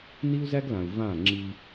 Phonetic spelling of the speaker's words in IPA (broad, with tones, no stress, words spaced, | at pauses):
ni˦u̯zæ˦ɡlã˨u̯ vã˦˨ ŋ͡ǁi˦